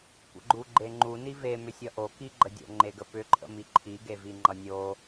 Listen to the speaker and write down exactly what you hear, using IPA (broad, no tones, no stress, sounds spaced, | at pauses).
kʷ ə̰ ɡ͡ǃ u ɡ͡ǃ e ŋ͡ǃ u n i v e m ʏ sʲ ʌ ʔ o k i ɡ͡ǃ ə dʲ o̰ ŋ͡ǃ e ɡ ə p ʏ ǃʼ ə̰ m i ǃʰ i ɡ e v i ŋ͡ǃ ʌ nʲ o